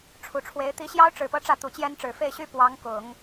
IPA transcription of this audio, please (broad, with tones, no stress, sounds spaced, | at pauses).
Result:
ʈ͡ʂʰ u˨˩ ʈ͡ʂʰ w e˧˥ ɪ̯ t̪ i˧˥ ɕ j ɑ˥ ʊ̯ ʈ͡ʂ ɻ̩˨˩ p ɤ˧˥ ʈ͡ʂ ä˥˩ t̪ u˨˩ t͡ɕ j ɛ˥ n ʈ͡ʂ ɻ̩˨˩ f e˥˩ ɪ̯ ɕ y˥ p w ɑ˧˥ ŋ k ʊ˨˩˦ ŋ